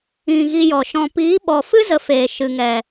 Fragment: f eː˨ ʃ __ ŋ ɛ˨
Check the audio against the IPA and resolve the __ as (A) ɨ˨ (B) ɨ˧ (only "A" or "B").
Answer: A